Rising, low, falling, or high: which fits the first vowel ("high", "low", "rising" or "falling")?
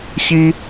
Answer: high